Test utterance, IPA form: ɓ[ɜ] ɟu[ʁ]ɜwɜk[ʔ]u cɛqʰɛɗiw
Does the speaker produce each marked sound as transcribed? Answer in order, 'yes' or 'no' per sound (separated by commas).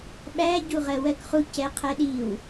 no, yes, no